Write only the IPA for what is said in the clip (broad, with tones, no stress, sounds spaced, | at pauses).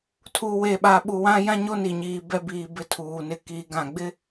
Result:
tʰ u˨ w e˨ ɓ a˨ ɓ u˨ w ã˦ j ã˦ ɲ o˦ n i˨ ɲ iː˨ b ɛ˦ b iː˨ b ɪ˦ tʰ uː˨ n ɪ˦ k i˨˦ ɡ ã˨ ɡ͡b ɪ˦